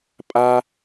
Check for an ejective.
present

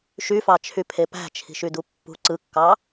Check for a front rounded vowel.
present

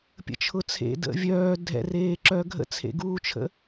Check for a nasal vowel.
absent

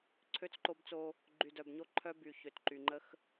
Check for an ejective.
absent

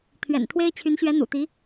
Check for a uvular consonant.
absent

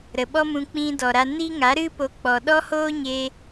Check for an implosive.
present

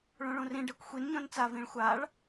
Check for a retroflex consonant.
present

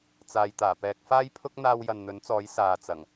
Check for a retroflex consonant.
absent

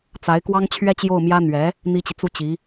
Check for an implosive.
absent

